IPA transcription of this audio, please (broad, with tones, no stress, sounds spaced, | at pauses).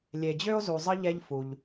lʲ e˨ d͡ʑ ø˥ o̯ z u˨ zˤ ə˦ ʎ ɛ˦ ʎ f u˩ ʎ